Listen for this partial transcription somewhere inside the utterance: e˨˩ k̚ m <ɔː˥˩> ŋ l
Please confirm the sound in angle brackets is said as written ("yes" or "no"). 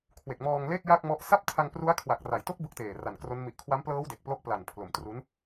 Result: no